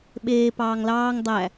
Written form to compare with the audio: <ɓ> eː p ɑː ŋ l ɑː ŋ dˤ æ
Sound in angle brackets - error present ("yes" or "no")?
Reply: no